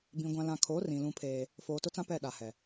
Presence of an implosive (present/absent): present